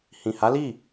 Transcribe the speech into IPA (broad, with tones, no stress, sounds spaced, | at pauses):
h ĩ˨ h a˨˦ l i˦˨